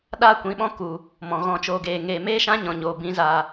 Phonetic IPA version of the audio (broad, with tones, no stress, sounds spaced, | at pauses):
ɗ a˦ kʷ ĩ˨˦ ɓ ɔ̃˦ k u˨ | m ɔ̃˨ ɣ ɔ̃˧ t͡ʃ oː˧ ɡ eː˨ ŋ eː˨ m eː˦ ʃ ã˦ ɲ ɔ̃˨ ɲ oː˨ b ĩ˨˦ z aː˨